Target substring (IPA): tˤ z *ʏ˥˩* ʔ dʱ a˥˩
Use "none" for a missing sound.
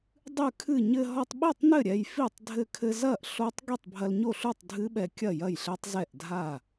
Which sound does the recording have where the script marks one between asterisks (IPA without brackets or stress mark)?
ɛ˥˩